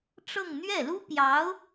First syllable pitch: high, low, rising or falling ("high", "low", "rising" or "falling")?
falling